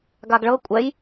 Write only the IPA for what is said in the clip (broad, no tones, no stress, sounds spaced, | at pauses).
ɡ a ɡ ɭ ɤ kʷʼ ɛ j